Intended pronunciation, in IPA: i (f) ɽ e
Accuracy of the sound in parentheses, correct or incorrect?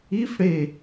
correct